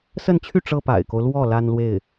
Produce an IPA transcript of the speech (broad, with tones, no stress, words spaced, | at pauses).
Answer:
sə˥˧nt͡ɕʰy˥˩ ʈ͡ʂɤ˥pa̰˨˩ɪ̯ko˦ʊ̯lwɔ˥˩ la˥nlwe˥˩ɪ̯